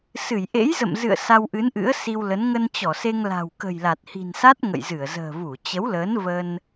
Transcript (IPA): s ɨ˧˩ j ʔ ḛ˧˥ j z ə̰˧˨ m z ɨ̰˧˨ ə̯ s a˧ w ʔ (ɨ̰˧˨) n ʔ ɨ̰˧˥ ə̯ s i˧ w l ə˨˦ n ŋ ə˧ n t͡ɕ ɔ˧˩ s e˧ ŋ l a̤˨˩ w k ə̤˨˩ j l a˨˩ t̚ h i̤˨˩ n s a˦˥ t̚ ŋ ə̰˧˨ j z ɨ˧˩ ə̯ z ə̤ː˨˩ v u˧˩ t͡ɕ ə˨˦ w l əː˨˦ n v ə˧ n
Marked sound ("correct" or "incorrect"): incorrect